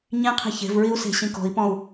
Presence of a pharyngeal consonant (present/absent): absent